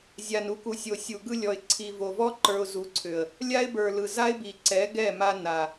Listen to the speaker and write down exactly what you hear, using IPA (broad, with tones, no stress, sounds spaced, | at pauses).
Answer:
zʲ a˨ n u˨ k u˨ sʲ o˨ sʲ u˨ ɡ ɯ˧ lʲ ɔ˨ ɪ̯ ǀʰ i˨ v o˨ v ɔ˦ ǃ ə˞˧ ʊ̯ z u˨˦ ǀʰ ʏ˨ ə̯ | lʲ a˦ ɪ̯ b ə˞˨ l ɯ˨ z a˦ ɪ̯ b i˨ ǀ ɛ˨˦ ɡ ɛ˦˨ m a˧ n a˨